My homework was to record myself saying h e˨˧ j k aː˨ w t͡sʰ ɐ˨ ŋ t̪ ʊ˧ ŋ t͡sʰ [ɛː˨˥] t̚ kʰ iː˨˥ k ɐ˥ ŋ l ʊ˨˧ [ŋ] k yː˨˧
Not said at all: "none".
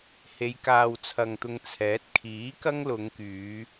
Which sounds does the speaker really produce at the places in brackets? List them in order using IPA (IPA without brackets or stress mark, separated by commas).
ɛː˨˥, ŋ